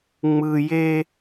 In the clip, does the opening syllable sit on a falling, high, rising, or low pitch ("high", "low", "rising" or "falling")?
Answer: low